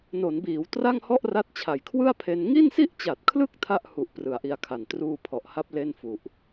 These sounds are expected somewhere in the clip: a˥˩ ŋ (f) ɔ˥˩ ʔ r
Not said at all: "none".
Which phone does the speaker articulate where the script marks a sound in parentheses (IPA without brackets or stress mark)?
h